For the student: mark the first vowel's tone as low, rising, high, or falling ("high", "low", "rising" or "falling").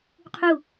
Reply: falling